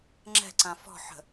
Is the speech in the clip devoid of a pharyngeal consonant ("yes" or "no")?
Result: no